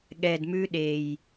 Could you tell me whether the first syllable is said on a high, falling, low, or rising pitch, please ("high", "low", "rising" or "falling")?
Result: low